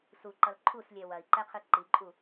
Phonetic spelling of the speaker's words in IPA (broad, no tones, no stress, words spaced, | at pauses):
suǃʌl ǃʰuslʲɛ wɐi̯ǃɛqʰɯ ǃiǃʼu